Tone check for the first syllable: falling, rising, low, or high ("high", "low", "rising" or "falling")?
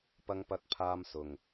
high